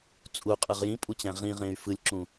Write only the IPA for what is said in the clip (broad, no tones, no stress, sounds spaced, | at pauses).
t͡sʼ u qʼ ɯ ʁ j ĩ pʼ u t͡ɕ æ̃ ʁ ĩ ʁ ẽ y̯ f ɯ lʲ ǁ ũ